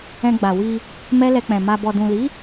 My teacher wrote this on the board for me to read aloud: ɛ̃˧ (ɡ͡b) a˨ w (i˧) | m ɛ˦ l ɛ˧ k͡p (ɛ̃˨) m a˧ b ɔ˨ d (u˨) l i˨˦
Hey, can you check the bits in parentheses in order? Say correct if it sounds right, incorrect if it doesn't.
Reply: correct, correct, correct, incorrect

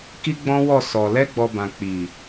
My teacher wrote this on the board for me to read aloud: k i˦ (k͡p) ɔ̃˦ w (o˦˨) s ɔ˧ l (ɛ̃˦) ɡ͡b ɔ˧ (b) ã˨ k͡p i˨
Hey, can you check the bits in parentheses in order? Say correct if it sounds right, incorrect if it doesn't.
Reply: incorrect, incorrect, incorrect, correct

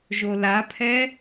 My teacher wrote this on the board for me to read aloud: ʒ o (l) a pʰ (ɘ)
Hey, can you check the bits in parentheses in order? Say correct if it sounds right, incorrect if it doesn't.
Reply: correct, incorrect

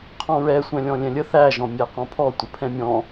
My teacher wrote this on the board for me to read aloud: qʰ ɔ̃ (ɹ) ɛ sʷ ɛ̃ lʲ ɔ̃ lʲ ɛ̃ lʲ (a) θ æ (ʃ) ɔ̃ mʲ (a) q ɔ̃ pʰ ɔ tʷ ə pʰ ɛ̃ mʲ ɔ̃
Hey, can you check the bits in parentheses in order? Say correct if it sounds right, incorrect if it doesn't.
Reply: correct, incorrect, incorrect, incorrect

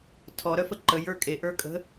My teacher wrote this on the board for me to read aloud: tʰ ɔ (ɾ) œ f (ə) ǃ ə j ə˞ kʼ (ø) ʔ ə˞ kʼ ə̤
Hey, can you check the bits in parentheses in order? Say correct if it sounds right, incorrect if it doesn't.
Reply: correct, correct, incorrect

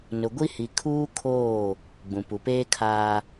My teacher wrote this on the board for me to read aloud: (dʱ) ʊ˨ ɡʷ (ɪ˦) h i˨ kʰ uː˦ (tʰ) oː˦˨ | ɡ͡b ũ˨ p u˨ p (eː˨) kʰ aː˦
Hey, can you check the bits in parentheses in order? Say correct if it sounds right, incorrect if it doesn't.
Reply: incorrect, incorrect, incorrect, incorrect

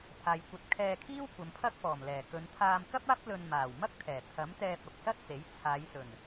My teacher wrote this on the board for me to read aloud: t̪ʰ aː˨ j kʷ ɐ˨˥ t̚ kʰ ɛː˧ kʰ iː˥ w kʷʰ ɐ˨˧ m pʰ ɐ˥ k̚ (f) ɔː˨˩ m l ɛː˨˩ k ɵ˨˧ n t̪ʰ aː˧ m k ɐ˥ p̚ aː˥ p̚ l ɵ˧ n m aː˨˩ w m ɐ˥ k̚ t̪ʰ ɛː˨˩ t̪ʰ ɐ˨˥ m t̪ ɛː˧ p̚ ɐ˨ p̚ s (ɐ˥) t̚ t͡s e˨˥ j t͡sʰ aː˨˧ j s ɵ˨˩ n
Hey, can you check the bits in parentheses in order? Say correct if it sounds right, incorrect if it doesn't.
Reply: correct, correct

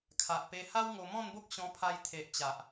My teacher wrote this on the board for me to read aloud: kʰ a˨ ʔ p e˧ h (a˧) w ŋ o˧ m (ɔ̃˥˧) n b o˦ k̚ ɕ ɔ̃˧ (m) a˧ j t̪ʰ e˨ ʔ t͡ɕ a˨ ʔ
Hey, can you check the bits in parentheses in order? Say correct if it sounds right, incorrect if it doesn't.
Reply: incorrect, correct, incorrect

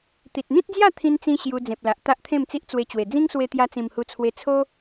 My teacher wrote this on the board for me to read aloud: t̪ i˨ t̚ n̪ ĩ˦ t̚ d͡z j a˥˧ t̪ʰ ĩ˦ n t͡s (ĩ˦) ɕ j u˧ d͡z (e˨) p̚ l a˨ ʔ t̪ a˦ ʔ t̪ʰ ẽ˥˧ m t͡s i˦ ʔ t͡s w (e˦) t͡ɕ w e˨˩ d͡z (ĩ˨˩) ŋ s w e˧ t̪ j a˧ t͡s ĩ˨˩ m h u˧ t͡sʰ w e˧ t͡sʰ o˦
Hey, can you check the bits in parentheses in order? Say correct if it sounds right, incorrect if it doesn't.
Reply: correct, incorrect, incorrect, incorrect

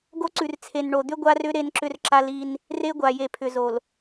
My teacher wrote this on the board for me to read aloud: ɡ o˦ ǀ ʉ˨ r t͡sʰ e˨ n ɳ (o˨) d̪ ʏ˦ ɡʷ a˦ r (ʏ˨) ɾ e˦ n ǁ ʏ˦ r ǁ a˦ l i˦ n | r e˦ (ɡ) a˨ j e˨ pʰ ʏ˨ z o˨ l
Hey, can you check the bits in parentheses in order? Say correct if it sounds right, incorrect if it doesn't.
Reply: correct, incorrect, incorrect

